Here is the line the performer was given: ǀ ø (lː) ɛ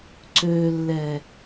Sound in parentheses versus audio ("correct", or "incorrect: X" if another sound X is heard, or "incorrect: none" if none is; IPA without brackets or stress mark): correct